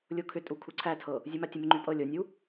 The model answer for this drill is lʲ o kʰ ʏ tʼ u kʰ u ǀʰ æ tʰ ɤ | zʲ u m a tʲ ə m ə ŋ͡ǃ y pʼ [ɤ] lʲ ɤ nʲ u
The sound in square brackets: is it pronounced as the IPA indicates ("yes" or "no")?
yes